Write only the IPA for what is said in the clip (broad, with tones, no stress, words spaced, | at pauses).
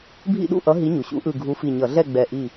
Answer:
bʱḭ˥˩ɗṵ˥˩ʔʌ˨˥ ɦi˨˥ɲu˩ɕṵ˨˥ʔɯ˧˩ ɡʱu˨˥fi˧˩ɲʌ˧˩˧ ɮɛ˥˩ɡ͡bɛ˧˩ ʔi˧˩